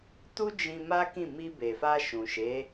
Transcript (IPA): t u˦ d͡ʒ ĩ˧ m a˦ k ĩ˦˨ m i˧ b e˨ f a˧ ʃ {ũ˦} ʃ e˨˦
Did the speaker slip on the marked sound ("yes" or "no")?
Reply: yes